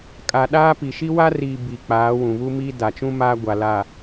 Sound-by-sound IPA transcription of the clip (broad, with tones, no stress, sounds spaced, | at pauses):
kʼ a˨ ɗ aː˦ p i˨ ʃ i˦ w a˦ r iː˨ b i˨ k͡p aː˨˦ w ũ˨ β u˦ m i˦ d a˨ t͡ʃ ũ˦ m aː˦ ɡʷ a˨ l aː˨